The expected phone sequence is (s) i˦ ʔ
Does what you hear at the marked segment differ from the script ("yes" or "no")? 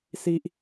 no